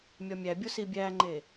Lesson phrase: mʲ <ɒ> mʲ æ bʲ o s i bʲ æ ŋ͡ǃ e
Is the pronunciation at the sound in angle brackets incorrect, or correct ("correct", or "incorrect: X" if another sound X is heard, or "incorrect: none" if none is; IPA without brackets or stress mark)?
correct